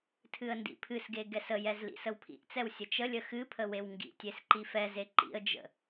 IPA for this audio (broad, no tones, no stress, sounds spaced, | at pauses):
tʰ ɨ ə̯ n d ḭ pʰ ɨ s ɡ e ɡ ɛ s ə j ɛ z l ḭ s ə w pʰ ḭ ʔ t͡s ɛ w sʲ ə t͡ʃ ə lʲ ə x ɨ pʰ ə w e w ŋ ɡ ḭ tʲ e s ǃ i f ɛ z e ǃ ḭ ə̯ d͡ʒ ə̰